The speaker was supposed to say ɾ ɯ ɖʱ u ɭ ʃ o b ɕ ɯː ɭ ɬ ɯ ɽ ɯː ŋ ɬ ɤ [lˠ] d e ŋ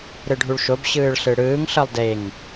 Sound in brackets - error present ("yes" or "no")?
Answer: no